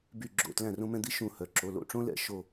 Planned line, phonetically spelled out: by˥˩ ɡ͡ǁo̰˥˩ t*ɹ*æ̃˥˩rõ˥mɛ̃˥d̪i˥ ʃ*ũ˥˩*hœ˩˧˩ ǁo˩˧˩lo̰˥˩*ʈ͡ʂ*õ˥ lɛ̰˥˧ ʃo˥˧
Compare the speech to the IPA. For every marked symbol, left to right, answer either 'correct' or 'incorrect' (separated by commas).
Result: incorrect, correct, correct